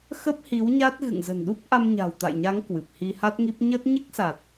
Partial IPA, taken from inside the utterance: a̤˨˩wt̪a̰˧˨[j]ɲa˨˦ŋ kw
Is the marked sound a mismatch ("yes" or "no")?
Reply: no